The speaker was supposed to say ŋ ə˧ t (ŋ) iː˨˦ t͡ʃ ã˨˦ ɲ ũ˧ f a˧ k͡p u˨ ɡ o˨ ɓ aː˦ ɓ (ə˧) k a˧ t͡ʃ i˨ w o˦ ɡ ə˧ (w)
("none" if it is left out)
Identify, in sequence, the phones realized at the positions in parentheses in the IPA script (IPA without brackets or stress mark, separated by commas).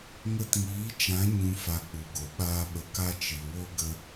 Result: ŋ, ə˨, none